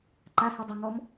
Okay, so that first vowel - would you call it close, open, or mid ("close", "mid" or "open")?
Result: open